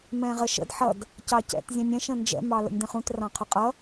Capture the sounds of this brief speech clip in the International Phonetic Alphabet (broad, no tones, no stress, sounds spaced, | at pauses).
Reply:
m ɛ̃ ʁ ə ʃ ə̰ d ħ ʌ d | c ɑ c ɛ̰ t zʲ ɛ̃ nʲ ɛ̃ ʃ ə̃ n d͡ʒ ɛ̰ m ɑ l ə̰ nʲ d ə̃ χ ũ t r ɑ̃ qʰ ʊ qʼ ʌ